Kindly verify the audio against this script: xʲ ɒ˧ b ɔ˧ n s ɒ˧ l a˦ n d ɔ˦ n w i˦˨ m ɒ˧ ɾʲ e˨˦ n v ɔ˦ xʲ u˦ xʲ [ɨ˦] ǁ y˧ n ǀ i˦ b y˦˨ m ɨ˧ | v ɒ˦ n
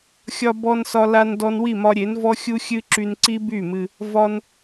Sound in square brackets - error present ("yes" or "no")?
no